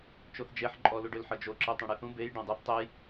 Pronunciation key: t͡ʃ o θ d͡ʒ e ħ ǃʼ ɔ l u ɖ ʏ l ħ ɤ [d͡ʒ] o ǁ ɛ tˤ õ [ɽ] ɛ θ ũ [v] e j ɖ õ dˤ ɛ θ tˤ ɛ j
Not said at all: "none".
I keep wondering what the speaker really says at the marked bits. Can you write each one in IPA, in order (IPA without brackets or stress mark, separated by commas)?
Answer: d͡ʒ, ɽ, b